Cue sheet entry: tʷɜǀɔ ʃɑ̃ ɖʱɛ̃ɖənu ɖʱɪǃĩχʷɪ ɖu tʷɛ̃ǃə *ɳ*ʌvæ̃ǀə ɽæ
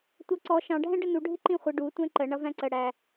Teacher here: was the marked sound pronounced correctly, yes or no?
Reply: yes